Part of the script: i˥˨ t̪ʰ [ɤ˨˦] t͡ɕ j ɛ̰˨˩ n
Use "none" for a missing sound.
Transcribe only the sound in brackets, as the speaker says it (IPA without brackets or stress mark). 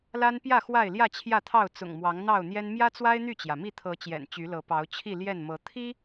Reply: ɤ˨˦